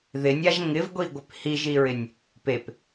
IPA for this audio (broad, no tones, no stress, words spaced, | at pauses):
ðɪnʲaʒ ŋɪvɡʷiɡʷɪp hiʒiɹɪnʲ | pep